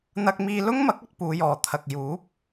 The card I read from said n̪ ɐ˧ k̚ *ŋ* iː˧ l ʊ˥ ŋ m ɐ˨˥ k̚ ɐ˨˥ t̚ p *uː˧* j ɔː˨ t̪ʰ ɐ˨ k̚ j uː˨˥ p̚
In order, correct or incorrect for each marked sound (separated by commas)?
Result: incorrect, incorrect